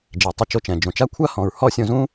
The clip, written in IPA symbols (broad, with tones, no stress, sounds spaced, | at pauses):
d͡ʒ ɛ˨ tˤ ɘ˧ t͡ʃ o˧ t͡ʃ ɛ̃˨ d͡ʒ õ˨ t͡ʃ a˦ kʷʰ a˦ h ɔ̃˨ ɹ h ɔ˦˨ sʲ õ˧ z ũ˦